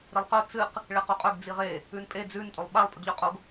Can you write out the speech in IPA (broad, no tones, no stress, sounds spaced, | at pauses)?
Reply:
ɾ i lˠ q ɵ t͡s ɨ q | ɭ e q u qʼ ɵ ɡ d͡z i ʁ e | ʉ n pʼ e d͡z ʉ n tʼ o lˠ ɓ a lˠ pʼ ɨ ɡ ʎ ɵ qʼ o ɡ